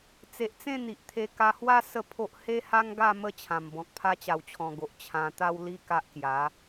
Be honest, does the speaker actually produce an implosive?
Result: no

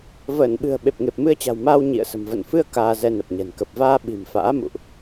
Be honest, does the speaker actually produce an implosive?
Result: yes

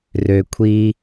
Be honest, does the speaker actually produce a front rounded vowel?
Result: yes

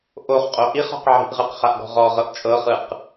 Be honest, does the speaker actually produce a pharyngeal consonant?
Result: yes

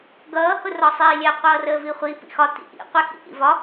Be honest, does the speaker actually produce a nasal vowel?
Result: no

